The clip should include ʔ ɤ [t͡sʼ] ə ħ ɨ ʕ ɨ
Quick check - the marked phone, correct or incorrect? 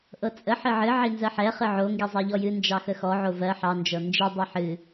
correct